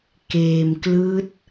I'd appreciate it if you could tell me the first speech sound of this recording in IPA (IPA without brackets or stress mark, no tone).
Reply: k